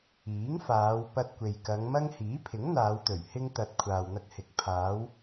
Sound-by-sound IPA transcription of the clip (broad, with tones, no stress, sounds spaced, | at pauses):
iː˨˥ ŋ f aː˨˧ w p ɐ˧ t̚ kʷ e˨ j k ɐ˨˧ ŋ m ɐ˥ ŋ h iː˨˥ pʰ ɪ˨˥ ŋ n̪ aː˨˧ w t̪ ɵ˨˩ ɥ h ɪ˧ ŋ t̪ ɐ˨ t̚ kʷʰ aː˨ w n̪ ɐ˧ k̚ h ɪ˨˥ k̚ pʰ aː˨˧ w